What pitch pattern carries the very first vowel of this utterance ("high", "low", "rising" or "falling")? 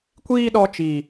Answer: high